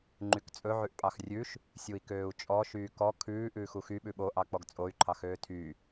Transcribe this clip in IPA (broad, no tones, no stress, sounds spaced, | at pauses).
ŋ͡ǃ y k t͡sʼ ɵ ʕ ʉ ʔ pʼ ɑ x rʲ ʉ ʃ | sʲ u i̯ k øː u̯ t͡ʃʼ ɔ ʃ yː k ɔ kʰ ʉː ʔ ʉː x u x y ɓ ʉ ɓ o ʔ ɑ k͡p ɔ ɡ t͡sʼ o y̯ ǃʰ ɑ x øː tʰ y